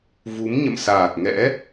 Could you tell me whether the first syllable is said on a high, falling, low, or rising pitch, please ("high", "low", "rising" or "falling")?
rising